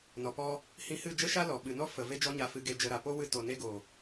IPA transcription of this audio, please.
n ɔ˨ p ɔ˦ | h ĩ˧ h ɨ˦˨ d͡ʒ ə˦ ʃ a˦ l ɔ˨ ɓ ɨ˨ n ɔ˦ f ə˨ v e˦ d͡ʒ ɔ˦ ɲ a˧ f ɨ˧ ɡ e˧ d͡ʒ ə˧ ɾ a˨ p o˦ w ɨ˦ t o˧ n e˦ ɡ o˨

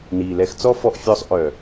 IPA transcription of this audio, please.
n iː˨ l ɛ˧ x t͡s ɔ˦ f ɔ˧ ʔ fʲ ɔ˧ sˤ ʔ œ˨

